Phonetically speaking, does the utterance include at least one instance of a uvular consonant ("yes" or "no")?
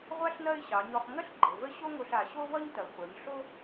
yes